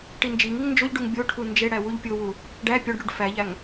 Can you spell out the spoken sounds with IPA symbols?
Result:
ʈind͡ʒiŋiŋ nd͡ʒoʎɖuŋ bʲoʈʰu nd͡ʒeɽæ wuʎpʲowu | ɖæ pʲɒɖɽuɖ fæʎæŋ

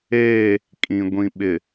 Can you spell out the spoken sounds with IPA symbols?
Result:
eː˦˨ | kʼĩ˨ ɡʷĩ˨ɓɪ˨

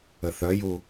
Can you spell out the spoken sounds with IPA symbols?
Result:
əθœju

